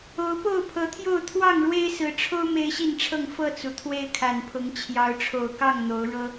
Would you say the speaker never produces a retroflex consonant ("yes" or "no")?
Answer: no